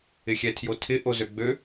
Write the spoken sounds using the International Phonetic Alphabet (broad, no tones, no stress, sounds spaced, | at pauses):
ɪ xʲ ɛ tʰ j o tʰ ɪ ʔ o z ø ɡ͡b ø